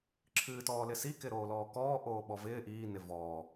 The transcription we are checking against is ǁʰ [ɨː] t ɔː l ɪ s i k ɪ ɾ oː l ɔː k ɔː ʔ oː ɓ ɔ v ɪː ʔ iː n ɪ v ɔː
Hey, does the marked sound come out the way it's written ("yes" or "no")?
yes